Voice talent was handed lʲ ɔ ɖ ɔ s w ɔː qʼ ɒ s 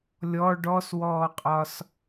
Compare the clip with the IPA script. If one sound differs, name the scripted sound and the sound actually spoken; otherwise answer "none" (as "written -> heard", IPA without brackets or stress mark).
none